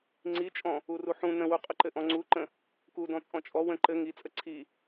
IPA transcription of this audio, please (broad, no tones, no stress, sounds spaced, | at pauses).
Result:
ŋ͡ǀ i t͡ʃʼ ɔ̃ | u r u ħ ũ n ə̃ w u qʼ ə ǃ ɘ ʔ ɔ̃ ŋ͡ǀ u ǃ ə̃ | k u d ɔ̃ t͡sʼ ɔ̃ t͡ʃʼ ɔ w ə̃ ǃ ɘ ŋ i t͡sʼ ə ǀʰ i